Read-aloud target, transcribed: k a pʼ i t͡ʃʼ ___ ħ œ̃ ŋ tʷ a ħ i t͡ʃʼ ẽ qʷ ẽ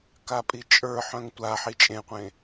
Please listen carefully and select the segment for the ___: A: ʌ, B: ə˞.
B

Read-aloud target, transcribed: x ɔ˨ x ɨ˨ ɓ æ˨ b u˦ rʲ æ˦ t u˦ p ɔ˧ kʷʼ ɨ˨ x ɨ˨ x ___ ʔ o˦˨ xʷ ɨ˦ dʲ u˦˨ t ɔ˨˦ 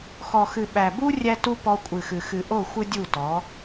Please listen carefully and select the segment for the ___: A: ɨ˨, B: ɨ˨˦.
A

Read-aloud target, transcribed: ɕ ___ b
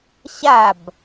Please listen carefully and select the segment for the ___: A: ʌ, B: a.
B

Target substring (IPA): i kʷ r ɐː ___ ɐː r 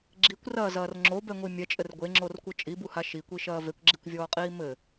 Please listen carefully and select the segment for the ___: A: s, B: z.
B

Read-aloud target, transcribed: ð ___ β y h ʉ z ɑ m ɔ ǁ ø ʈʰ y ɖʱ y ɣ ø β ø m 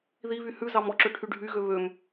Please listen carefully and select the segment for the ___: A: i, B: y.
A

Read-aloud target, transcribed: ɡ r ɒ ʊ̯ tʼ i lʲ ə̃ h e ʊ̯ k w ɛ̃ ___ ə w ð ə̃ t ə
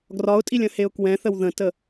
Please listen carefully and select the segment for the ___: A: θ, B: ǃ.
A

